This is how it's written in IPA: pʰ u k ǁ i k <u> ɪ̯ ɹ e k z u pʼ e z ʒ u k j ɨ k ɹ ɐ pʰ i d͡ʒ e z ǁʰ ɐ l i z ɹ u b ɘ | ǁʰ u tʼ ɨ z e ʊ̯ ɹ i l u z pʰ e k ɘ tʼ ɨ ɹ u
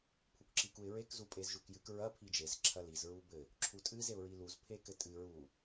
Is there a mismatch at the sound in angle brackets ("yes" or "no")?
no